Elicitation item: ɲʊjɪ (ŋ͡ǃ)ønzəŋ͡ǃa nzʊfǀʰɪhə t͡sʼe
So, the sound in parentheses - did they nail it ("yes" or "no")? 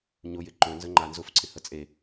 no